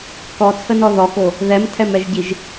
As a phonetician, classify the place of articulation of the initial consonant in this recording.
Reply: velar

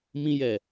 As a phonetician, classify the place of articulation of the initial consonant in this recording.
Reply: labial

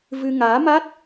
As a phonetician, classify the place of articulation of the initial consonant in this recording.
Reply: labial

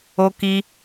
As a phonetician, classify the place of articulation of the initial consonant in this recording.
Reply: velar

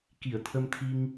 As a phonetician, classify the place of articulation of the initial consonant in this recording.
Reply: velar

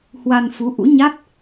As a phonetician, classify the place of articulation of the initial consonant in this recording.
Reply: glottal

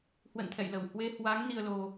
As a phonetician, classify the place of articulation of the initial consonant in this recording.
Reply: glottal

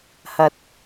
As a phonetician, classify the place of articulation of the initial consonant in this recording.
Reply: glottal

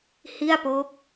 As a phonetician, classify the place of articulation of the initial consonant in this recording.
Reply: glottal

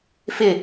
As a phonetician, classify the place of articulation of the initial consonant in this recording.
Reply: labial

